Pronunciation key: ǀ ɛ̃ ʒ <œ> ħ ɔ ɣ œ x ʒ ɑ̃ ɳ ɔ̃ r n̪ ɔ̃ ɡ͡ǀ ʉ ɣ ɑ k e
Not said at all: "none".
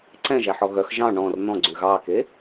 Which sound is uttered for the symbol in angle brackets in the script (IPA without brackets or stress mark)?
æ